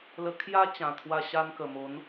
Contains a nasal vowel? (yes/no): yes